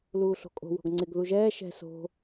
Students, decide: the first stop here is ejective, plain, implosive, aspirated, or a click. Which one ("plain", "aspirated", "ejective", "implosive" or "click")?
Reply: ejective